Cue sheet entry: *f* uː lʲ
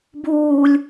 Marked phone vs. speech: incorrect: b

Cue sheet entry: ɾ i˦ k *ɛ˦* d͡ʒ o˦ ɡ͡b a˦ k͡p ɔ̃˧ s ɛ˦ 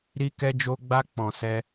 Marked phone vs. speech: correct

